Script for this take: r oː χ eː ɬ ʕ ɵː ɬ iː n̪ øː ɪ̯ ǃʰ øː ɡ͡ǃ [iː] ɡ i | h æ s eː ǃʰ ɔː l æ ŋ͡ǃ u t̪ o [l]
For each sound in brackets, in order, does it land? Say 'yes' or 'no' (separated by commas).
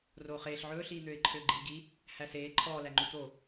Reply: yes, no